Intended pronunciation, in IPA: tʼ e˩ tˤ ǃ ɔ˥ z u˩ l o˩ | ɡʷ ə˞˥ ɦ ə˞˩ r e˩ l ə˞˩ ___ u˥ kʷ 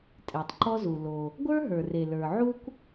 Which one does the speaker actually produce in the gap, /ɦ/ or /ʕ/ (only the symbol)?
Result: ʕ